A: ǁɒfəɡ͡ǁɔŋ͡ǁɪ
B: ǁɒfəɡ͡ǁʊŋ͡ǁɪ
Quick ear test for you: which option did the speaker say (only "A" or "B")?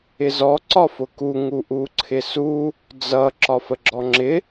A